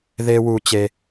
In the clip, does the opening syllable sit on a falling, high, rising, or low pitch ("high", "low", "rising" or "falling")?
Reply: high